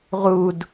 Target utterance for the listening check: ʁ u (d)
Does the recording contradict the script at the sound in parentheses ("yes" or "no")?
no